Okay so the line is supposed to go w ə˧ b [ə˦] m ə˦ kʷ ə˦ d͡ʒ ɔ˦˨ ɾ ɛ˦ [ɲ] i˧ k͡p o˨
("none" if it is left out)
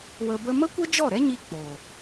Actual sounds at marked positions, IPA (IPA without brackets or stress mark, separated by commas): ə˦, ɲ